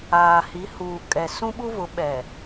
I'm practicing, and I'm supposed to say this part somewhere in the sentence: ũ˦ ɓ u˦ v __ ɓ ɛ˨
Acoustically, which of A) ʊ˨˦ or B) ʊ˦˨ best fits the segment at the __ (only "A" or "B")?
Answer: A